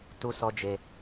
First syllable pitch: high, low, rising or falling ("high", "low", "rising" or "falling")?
high